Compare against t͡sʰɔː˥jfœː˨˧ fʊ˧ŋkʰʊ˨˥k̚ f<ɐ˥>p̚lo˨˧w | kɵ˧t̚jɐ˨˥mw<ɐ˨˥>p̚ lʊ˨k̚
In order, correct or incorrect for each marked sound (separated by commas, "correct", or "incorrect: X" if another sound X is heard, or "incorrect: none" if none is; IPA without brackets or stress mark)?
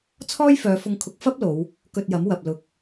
correct, incorrect: ɐ˨